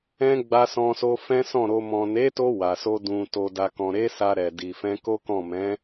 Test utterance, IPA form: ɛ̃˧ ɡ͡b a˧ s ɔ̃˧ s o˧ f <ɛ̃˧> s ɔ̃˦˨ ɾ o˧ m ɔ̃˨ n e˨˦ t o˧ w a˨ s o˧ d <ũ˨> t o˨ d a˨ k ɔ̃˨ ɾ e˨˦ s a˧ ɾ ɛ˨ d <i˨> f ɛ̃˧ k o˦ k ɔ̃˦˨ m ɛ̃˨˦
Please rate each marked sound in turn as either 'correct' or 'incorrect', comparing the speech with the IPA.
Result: incorrect: ɛ̃˦, correct, correct

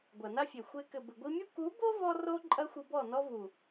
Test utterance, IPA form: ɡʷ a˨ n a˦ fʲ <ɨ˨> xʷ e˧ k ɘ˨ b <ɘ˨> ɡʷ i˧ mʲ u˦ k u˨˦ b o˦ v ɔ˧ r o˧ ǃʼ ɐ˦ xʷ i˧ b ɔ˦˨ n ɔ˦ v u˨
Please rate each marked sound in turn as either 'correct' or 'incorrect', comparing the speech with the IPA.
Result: incorrect: e˨, correct

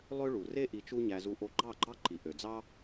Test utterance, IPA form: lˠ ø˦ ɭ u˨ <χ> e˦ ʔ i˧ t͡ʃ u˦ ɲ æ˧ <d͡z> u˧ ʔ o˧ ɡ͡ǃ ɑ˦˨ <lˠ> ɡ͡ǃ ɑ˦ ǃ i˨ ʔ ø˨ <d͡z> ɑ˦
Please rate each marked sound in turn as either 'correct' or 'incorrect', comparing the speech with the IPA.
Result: incorrect: r, incorrect: z, incorrect: none, correct

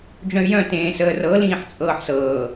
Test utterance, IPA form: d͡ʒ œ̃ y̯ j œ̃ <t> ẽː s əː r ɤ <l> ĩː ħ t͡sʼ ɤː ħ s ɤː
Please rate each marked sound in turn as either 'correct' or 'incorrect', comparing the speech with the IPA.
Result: correct, correct

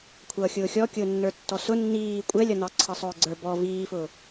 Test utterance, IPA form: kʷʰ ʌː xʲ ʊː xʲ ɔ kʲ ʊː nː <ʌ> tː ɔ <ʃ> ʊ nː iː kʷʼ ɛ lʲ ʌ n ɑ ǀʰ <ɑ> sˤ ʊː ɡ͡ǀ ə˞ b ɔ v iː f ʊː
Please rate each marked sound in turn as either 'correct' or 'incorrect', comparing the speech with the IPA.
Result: incorrect: ə˞, incorrect: s, incorrect: ʌ

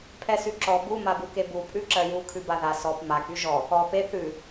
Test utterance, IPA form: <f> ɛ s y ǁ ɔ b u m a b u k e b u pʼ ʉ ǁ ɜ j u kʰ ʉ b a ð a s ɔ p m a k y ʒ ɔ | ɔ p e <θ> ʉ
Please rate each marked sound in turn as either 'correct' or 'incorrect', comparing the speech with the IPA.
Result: incorrect: pʰ, correct

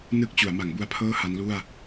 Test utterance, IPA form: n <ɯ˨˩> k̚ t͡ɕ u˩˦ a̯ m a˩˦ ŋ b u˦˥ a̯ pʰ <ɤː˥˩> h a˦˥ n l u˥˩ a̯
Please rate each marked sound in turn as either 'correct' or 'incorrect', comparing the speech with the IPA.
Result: incorrect: ɯ˥˩, correct

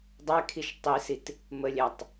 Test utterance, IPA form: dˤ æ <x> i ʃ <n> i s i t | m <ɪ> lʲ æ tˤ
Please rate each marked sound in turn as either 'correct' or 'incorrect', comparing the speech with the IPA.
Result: incorrect: kʰ, incorrect: tˤ, incorrect: ə

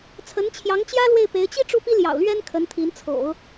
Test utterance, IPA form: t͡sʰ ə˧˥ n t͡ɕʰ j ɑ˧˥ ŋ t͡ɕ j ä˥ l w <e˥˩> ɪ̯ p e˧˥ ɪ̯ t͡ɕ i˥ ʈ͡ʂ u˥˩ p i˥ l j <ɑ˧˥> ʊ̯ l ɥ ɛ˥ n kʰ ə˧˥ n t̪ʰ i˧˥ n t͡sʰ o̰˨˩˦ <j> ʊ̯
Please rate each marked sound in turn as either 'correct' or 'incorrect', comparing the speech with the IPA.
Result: correct, incorrect: ɑ̰˨˩, incorrect: none

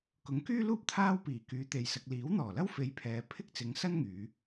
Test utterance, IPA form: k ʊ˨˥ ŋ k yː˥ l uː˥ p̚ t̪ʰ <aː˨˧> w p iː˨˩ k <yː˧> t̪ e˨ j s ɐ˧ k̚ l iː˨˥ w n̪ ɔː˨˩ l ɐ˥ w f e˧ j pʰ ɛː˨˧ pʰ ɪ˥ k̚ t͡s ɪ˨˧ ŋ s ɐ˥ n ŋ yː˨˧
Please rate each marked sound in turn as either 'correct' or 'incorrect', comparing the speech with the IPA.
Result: incorrect: aː˥, incorrect: yː˨˧

